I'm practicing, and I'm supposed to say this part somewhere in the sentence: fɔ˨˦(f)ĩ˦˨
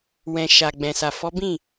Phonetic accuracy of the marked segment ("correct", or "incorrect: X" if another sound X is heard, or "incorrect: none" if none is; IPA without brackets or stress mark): incorrect: b